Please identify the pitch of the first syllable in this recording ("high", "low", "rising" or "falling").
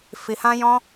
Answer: low